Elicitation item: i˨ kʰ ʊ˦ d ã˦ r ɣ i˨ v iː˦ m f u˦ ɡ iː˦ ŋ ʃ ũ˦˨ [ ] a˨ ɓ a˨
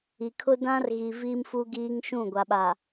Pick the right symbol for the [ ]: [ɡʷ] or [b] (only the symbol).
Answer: ɡʷ